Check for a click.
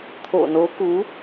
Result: absent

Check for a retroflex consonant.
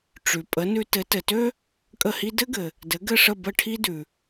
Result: present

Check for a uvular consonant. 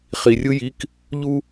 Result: present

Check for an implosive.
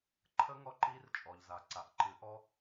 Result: absent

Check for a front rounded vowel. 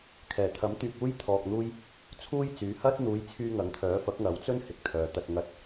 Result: present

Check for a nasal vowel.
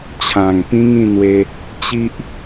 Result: present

